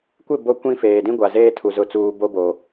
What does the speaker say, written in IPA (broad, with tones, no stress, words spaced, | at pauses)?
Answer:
kʷɪ˦˨ bo˦ kʷĩ˦feː˨ dĩ˦ɡʷa˨zeː˦tʰu˨ zʊ˦˨t͡suː˦ bo˦bo˨